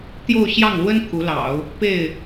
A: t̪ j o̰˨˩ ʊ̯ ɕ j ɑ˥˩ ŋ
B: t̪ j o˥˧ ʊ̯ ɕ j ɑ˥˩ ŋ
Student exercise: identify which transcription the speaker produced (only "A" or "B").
B